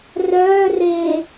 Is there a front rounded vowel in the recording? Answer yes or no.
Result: yes